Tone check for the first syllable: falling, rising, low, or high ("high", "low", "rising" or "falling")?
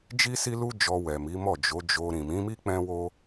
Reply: high